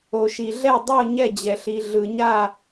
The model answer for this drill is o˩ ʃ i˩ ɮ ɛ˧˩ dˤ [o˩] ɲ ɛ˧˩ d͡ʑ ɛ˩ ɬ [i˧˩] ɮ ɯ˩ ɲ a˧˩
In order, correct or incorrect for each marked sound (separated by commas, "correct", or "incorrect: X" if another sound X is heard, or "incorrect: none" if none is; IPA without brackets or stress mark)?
incorrect: o˧˩, incorrect: i˩